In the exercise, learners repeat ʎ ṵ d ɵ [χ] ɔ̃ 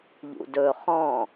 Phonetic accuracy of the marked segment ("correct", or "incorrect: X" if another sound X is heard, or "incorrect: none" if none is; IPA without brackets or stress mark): correct